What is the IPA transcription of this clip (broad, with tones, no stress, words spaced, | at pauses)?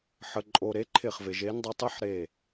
ħə˩ǃʼo˩ ɾe˨˦ǃʰɪ˧˩χvɪ˩ ʒe˨˦ndˤɪ˨˦ tˤɪ˦˥ħɾe˧˩